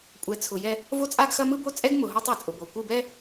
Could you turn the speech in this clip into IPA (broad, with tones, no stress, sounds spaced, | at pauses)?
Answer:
kʷʼ ɛ˨ t͡sʰ ʊ˨ j ɛ˦ | v o˦ t͡sʼ a˦ ɡ x ɐ˦ m ɯ˦ b o˦ t͡sʼ ɛ˦ ɡ m ʊ˨ ɦ o˦ tˤ o˨ t͡sʼ ʊ˨ b o˨ kʷ ɯ˦˨ b ɛ˦